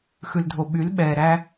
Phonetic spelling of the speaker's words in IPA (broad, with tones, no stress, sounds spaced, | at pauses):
x ʉ˨ l dʱ o˨ ɓ y˨˦ l ɓ ɛː˨ ɾ æ˦